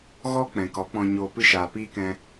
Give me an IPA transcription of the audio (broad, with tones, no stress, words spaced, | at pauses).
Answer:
ɣɔ˧ k͡pɛ̃˨kɔ˨˦k͡pɔ̃˧ ɲoː˧ pɨ˦ʃaː˨piː˦kɛ̃˧